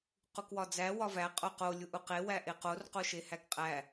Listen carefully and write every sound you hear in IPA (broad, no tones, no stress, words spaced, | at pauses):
qukwɒd͡zæ wɒvæ qʼoqo lʲuʔuqe wæʔeqor qoʃehækqʼæ